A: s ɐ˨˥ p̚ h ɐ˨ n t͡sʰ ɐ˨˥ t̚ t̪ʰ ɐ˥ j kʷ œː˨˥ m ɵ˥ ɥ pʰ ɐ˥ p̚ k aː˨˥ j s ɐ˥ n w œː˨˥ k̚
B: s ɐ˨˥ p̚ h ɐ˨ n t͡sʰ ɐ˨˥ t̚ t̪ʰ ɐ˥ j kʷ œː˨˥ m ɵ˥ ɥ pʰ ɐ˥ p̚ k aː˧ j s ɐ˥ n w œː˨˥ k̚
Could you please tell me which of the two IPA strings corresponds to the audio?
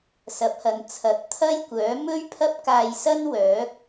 B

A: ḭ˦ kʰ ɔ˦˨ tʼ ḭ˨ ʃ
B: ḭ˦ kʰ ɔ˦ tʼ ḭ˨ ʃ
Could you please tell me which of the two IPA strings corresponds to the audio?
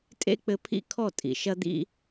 A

